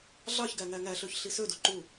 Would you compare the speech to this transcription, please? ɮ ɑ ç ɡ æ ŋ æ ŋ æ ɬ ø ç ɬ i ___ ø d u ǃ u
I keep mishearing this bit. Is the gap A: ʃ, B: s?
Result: B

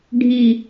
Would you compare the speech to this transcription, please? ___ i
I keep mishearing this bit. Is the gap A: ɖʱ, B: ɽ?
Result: A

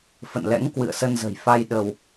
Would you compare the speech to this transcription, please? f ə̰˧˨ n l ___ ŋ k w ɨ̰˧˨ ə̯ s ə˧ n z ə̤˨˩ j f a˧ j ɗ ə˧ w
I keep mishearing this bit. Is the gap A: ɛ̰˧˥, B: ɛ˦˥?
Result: A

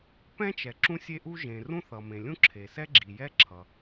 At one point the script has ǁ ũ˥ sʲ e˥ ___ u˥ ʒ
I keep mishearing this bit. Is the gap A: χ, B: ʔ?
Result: B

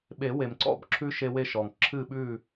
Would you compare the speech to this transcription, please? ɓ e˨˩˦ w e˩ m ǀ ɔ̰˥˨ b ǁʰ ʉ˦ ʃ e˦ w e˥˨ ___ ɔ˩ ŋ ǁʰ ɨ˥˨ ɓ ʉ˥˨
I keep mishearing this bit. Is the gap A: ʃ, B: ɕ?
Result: A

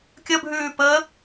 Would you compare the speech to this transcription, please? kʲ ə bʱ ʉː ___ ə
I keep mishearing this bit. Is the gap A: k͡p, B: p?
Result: B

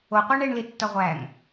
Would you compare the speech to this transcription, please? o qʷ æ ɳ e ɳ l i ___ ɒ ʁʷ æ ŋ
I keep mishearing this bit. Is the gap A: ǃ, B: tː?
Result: B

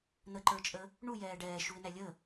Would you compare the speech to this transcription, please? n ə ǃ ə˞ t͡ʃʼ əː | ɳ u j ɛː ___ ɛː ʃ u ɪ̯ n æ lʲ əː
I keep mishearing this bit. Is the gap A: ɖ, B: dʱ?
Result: A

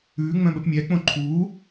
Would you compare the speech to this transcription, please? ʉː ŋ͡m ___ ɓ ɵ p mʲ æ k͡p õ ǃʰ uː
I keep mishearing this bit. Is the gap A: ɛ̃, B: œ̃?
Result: B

